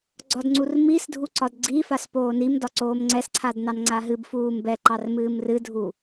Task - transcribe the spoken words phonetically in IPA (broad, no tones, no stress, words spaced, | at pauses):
ɡ͡ǀɒdŋ͡ǀurmisdʱu ǀɒdɡ͡ǀifas poːnimdɒ ǀoːmŋ͡ǀɛsǀʰad nɑnŋ͡ǀaɦɨbfuːm bɛǃɑr mɨːmrɨdʱu